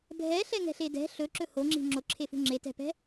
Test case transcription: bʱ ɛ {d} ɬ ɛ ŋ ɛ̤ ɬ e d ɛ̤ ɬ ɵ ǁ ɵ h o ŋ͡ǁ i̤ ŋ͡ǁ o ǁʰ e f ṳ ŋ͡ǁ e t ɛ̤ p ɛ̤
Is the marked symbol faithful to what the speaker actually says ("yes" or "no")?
no